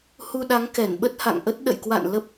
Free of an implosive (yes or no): no